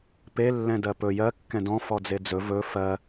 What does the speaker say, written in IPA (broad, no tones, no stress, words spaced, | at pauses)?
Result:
pe lːɛ̃dɜpɵ jɜ kːɛ̃dɔ̃ fɔd͡zed͡zɵ vɵ fɜ